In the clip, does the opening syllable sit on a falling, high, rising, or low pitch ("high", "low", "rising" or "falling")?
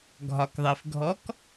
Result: low